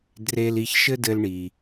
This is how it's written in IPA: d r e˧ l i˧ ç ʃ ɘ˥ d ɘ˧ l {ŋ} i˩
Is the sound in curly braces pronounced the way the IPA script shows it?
no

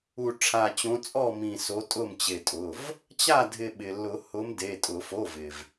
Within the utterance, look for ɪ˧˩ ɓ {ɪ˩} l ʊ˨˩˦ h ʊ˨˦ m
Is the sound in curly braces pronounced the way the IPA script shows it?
yes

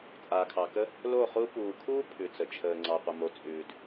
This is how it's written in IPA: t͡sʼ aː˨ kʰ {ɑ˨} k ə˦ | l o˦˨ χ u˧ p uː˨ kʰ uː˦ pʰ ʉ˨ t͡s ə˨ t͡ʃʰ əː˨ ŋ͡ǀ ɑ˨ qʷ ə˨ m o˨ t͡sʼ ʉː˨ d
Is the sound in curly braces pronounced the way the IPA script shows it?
yes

